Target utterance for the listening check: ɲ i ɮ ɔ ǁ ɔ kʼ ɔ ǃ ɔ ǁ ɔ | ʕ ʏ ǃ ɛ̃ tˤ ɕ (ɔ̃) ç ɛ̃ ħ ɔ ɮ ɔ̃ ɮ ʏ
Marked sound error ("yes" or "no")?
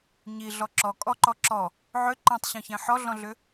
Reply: no